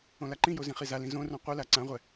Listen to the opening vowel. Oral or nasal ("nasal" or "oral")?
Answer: nasal